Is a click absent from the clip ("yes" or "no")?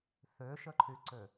no